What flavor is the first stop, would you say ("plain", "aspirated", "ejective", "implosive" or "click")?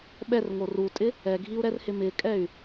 implosive